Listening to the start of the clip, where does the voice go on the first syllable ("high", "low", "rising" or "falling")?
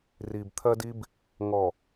low